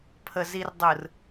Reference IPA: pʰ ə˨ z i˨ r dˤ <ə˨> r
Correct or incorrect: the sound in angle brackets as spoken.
incorrect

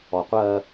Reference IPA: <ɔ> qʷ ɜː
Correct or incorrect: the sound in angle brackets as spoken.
correct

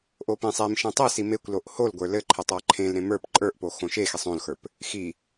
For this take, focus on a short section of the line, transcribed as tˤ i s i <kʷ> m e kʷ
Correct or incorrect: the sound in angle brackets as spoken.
incorrect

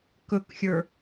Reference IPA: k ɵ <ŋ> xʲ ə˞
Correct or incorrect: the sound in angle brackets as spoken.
incorrect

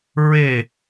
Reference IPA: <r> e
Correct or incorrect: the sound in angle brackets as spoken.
incorrect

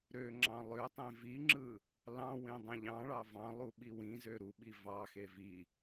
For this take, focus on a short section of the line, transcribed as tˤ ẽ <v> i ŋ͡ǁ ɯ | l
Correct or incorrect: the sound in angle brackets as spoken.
correct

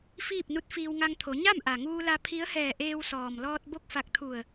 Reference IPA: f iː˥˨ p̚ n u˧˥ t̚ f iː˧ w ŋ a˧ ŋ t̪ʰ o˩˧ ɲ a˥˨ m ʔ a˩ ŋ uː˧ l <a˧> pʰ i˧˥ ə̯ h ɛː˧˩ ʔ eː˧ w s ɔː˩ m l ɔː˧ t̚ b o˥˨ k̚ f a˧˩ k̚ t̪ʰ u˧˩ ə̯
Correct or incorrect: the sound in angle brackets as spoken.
correct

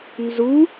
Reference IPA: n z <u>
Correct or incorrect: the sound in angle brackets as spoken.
correct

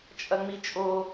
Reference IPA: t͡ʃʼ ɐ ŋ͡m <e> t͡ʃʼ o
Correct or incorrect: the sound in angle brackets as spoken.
incorrect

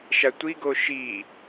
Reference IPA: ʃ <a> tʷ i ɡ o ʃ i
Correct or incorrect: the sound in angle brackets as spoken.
correct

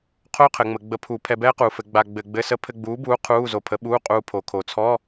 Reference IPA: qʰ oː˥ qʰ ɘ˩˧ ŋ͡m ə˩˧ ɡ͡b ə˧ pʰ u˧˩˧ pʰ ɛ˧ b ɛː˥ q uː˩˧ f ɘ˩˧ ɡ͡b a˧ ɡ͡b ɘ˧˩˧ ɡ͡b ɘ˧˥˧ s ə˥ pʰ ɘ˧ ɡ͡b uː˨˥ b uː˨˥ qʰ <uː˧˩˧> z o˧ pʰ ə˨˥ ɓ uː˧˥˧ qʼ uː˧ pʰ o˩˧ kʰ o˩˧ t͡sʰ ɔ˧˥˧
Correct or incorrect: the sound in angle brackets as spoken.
incorrect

